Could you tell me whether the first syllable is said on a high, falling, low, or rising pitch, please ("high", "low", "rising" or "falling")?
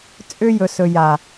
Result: high